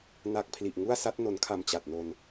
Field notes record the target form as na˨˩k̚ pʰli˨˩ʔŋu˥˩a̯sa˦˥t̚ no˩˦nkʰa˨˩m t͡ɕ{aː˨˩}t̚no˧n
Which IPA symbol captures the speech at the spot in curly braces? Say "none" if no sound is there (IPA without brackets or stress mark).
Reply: a˨˩